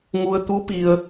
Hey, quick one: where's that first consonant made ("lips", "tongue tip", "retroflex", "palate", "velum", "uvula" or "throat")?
velum